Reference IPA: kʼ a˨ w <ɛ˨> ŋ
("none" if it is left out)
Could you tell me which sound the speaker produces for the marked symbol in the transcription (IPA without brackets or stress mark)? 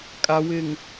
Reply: ɪ˨